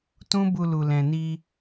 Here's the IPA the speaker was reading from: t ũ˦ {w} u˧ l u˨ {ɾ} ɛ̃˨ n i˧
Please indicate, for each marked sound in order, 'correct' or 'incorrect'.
incorrect: b, incorrect: l

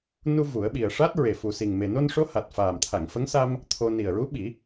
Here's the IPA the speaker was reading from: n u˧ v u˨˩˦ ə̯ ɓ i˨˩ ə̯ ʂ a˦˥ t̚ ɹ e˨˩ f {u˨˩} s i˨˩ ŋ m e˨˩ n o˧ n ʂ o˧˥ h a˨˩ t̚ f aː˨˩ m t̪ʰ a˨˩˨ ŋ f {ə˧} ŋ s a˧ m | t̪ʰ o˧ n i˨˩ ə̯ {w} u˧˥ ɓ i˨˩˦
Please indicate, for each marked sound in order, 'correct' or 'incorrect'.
correct, incorrect: ə˧˥, incorrect: ɹ

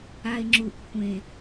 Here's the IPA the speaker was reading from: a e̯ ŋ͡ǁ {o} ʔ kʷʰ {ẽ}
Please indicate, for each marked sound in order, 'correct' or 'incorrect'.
incorrect: u, correct

